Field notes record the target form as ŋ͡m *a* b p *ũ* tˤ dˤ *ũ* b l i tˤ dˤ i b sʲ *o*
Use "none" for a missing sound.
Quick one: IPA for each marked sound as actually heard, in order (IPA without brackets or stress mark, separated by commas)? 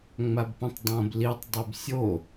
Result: a, õ, õ, o